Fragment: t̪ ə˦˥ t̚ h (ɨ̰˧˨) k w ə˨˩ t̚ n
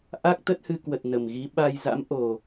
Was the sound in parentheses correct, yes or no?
no